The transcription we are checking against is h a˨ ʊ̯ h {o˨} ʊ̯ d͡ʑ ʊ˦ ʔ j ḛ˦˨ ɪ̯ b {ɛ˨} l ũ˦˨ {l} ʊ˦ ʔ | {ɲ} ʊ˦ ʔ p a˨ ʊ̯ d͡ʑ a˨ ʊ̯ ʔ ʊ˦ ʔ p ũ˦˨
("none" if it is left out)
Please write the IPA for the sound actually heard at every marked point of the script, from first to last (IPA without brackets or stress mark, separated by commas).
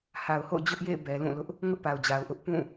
o̰˦˨, ɛ˨, l, ŋ